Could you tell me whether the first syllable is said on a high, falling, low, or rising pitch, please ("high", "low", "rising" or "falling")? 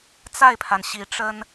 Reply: falling